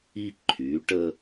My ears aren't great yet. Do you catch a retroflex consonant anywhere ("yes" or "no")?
yes